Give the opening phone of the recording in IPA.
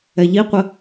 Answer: ɛ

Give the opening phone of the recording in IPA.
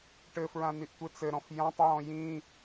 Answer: ʈ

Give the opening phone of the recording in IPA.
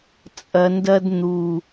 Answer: t͡sʼ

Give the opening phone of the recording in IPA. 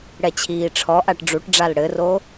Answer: ɽ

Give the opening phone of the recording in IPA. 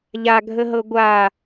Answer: ʎ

